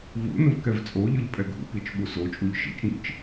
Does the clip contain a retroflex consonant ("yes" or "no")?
no